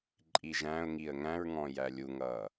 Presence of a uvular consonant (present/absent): absent